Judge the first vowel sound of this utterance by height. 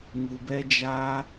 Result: high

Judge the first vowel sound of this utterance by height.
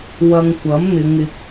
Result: low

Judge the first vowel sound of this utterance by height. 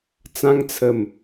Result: low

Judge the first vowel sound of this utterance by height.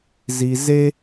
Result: high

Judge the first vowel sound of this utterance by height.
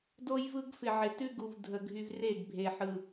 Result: mid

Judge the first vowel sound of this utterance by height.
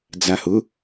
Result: low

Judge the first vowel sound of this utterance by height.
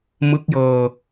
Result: high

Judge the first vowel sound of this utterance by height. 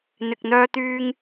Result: high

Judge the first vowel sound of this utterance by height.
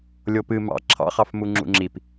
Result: mid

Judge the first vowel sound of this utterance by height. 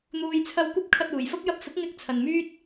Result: high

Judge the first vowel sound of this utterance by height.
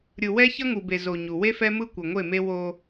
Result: high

